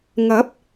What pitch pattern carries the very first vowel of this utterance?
rising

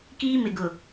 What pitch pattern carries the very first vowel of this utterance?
high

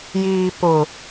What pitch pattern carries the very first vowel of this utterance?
low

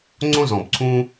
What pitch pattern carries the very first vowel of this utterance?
high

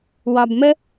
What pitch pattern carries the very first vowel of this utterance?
low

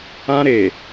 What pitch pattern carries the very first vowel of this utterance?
high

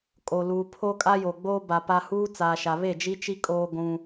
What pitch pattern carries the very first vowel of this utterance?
low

